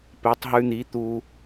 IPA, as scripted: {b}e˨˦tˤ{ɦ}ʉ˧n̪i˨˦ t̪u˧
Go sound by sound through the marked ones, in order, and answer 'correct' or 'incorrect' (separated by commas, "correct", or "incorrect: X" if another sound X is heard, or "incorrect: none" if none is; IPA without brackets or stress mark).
incorrect: p, correct